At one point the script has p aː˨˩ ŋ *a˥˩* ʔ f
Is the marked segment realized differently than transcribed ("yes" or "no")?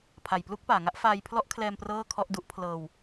yes